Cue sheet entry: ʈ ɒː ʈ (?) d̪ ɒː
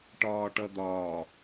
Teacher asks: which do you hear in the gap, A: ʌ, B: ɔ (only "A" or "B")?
A